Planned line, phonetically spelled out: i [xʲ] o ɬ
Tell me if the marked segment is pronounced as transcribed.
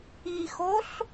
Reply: no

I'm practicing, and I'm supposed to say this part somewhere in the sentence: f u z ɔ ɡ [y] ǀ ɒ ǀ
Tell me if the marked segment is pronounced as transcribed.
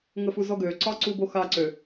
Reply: no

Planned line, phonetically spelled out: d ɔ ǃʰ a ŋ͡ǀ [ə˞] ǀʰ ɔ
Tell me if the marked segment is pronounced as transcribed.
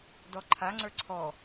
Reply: yes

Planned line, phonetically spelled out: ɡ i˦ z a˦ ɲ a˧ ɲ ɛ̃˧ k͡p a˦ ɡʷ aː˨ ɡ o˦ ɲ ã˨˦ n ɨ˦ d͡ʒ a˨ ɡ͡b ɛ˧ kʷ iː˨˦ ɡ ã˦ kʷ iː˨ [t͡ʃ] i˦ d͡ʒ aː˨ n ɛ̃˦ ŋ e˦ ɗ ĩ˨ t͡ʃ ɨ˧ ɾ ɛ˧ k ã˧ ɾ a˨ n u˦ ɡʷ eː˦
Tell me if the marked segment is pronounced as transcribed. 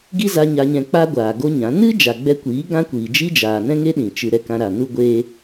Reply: no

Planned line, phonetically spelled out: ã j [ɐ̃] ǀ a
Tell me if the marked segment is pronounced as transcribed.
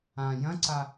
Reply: yes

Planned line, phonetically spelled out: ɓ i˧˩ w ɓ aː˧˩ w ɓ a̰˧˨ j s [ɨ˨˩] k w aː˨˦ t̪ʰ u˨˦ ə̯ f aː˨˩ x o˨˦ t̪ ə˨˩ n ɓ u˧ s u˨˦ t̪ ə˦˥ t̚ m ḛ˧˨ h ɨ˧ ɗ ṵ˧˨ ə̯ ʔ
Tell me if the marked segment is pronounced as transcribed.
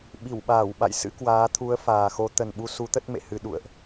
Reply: no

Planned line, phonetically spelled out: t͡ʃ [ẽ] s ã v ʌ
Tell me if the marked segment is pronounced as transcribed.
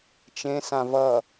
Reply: yes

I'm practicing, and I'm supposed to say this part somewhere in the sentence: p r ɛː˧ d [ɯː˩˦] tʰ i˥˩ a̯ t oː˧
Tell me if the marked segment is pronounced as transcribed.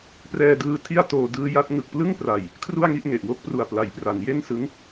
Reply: no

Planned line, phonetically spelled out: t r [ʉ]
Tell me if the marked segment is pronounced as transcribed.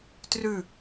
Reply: yes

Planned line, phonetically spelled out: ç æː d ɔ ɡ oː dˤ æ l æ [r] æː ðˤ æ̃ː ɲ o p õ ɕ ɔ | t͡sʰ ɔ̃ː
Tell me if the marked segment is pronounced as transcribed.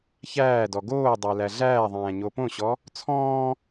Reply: no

